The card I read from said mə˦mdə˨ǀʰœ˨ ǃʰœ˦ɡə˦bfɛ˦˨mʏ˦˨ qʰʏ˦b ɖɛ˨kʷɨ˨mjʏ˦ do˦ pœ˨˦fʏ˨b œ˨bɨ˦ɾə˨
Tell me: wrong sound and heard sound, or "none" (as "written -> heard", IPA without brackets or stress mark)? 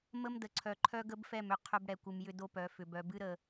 ɖ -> ɽ